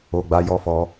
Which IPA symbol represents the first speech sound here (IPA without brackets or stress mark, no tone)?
o